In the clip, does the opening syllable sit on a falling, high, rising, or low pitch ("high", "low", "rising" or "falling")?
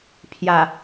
low